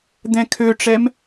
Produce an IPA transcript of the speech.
d̪ɛ̃kʰøʈ͡ʂɛm

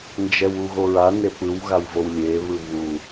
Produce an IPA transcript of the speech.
nd͡ʒɛwuɣoɹa nepɯw ɣawvowlʲe βɯβu

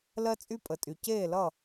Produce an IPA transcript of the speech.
lɜ˧t͡sʼy˧pʼə˩tʼy˩ ceː˧˩lʌ˧˩

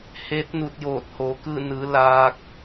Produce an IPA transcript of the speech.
he˧˥t̚ nu˧t̚joː˧˩t̚ hoː˩˧kɯː˥˨ nɯː˩˧ laː˧k̚

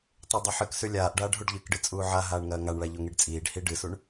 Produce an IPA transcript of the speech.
tˤedˤɐħɨksʉ lʲaːʔɖaːɖ ɦuɖʎɨkɖɨ t͡sʼuːʕaɦaːɳ ŋɐːŋaɳɭa ʎoŋiɖt͡sʼiːɖhi ɖɨsuɳ

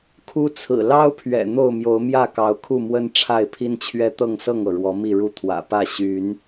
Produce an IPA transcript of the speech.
kʰu˦t͡sʰɹ̩˨˩ lɑ˦ʊ̯pʰɥɛ̰˨˩ n̪o˥˨ʊ̯mjo˨˦ʊ̯mjä˥˨ kɑ˨˦ʊ̯kʰu˥˨mwə˦n ʈ͡ʂʰa˥˨ɪ̯pʰi˦nt͡ɕʰɥɛ˦ t̪ɤ˥˨ŋsɤ˥˨ŋɤ˩ ɻwɔ˨˦mi˥˨ɻu˦ t̪ʰwä̰˨˩pä˥˨ ɕy˨˦n

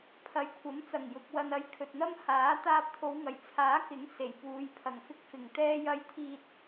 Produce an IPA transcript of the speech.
pʰɐ˨˧jkʷʰɐ˨˥mt͡sɐ˨˩ŋ jʊ˨k̚ wɐ˧nɐ˧jkʰɵ˨t̚n̪ɐ˥m haː˨˥ t̪aː˧p̚t̪ʰo˨˧wŋɐ˨˩jt͡sʰaː˨˥ kɪ˨˥ŋ se˨˩jpuː˨˧j pʰɐ˨˩ŋfɪ˧k̚fɪ˨˩ŋ t̪ɛː˥jɐ˥j t̪ʰiː˧t̚

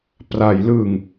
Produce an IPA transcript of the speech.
pra˩˦jlɯ˨˩ŋ

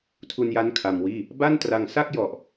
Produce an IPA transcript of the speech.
tʰu˧nja˦˥n kʰa˧mwiː˥˩ | ba˥˩ntra˧ŋ sa˥˩k̚jɔ˨˩ʔ

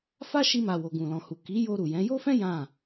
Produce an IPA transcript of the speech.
fa˦ʃi˧ma˨ wo˨ɡũ˨lɔ̃˨hu˨ ki˨˦jo˧ ɾu˨jɛ̃˨˦ jo˦fɛ̃˦ jã˦˨

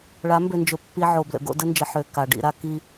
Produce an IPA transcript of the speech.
ɭa˨˦mbø˨nd͡ʒɵ˨ pːi˦ʕo˨ blə̰˨ɡo̰˦ də˦nd͡ʒə˨ħø˨ ka˨ɖḭ˦ ɾa˦ ki˦

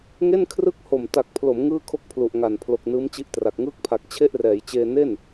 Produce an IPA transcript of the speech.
ŋe˥˩nkʰrɯ˥˩k̚ ho˨˩mta˨˩k̚pʰlo˩˦m ŋɯː˥˩kʰo˥˩k̚pʰlu˨˩ʔŋa˨˩n pʰlo˨˩k̚nɯː˦˥mt͡ɕi˦˥ʔtra˨˩k̚ ŋɯː˦˥k̚pʰa˨˩k̚ t͡ɕʰe˥˩ʔrɛː˩˦jt͡ɕeː˧ ne˥˩n

